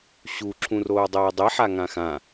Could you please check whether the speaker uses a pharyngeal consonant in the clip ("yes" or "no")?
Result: yes